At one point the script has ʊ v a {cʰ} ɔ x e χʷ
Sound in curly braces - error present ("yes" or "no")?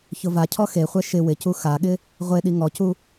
no